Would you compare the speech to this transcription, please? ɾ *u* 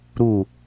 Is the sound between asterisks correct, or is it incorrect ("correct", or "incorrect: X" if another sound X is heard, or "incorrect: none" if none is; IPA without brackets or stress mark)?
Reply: correct